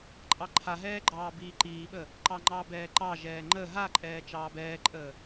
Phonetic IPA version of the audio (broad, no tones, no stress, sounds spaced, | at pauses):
ǃʼ ɑ ǃʰ a ɦ ɛː ɡ͡ǃ ɑː b iː ǃ iː ɓ ə | ǃ ɑ ŋ͡ǃ ɑ b ɛː ǃ ɑ ʒ ɛː ŋ͡ǃ ə ɦ a ǃʼ ɛː t͡ʃ ɑː b ɛː ǃʼ əː